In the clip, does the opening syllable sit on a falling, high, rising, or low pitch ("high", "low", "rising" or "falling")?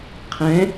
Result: rising